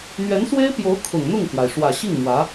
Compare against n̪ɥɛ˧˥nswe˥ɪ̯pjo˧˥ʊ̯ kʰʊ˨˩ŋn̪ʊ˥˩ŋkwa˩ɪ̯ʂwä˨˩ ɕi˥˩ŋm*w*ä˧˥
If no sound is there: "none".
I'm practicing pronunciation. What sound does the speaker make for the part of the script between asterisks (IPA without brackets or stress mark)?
w